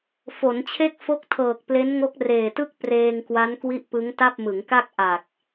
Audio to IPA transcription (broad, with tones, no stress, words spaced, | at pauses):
fo˩˦nt͡ɕʰe˥˩k̚ fo˦˥k̚tʰɤː˨˩k̚ple˦˥n ŋo˦˥k̚reː˨˩tɯ˥˩k̚ preː˧ŋkwa˦˥n kwi˥˩ʔ pɯ˦˥ŋta˥˩p̚ mɯ˩˦ŋka˥˩k̚ ʔa˨˩k̚